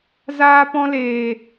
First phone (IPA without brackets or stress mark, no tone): z